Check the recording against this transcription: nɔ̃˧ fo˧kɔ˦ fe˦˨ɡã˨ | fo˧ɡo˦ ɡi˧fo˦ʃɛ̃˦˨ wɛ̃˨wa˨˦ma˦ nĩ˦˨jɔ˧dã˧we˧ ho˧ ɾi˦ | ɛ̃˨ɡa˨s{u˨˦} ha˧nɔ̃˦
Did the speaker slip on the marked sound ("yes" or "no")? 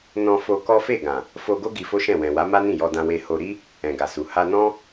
yes